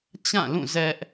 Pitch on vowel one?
falling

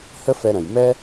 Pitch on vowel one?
high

